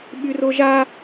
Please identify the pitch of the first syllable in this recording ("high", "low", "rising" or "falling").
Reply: high